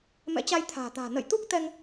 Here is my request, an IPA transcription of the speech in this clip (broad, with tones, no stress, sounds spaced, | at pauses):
m ɛ̰˧˥ t͡ɕ a˧ j t̪ʰ a̤ː˨˩ t̪ a̤ː˨˩ n ə̰˧˨ j t̪ u˦˥ k̚ t̪ ɛ˧ ŋ